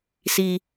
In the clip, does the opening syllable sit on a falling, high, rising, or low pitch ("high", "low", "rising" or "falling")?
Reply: low